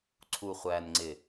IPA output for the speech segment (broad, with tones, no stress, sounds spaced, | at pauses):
ǀʰ u˨ χʷ æː˨ n ŋ͡ǀ ɪ˨